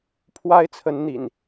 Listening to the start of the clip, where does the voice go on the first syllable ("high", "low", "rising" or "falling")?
high